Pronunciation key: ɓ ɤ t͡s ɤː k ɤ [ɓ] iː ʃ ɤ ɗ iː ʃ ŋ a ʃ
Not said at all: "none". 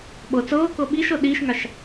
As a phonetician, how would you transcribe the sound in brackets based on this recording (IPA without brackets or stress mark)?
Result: ɓ